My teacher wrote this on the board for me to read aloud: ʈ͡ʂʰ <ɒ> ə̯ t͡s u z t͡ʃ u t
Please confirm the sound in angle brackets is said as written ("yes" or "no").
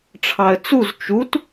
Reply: no